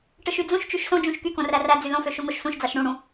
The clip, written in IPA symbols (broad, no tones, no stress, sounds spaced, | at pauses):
ʈ ɯ ʃ y d͡z ũ ʃ t͡ʃ y ʃ s õ d͡ʒ ũ ʃ k y k õ r æ r æ d͡z y l õ f ø ʃ u ŋ o ʃ s ũ ʃ d͡z ɑ ʃ ɽ ũ ɽ ũ